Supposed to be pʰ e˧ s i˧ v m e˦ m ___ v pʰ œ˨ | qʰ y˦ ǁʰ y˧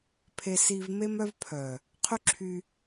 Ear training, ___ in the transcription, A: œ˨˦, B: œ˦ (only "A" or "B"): B